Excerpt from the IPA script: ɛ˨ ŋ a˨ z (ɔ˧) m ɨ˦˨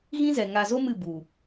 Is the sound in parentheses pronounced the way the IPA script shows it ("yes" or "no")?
no